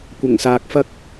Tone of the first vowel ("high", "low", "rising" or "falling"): low